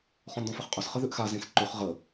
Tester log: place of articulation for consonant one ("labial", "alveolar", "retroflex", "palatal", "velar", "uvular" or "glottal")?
uvular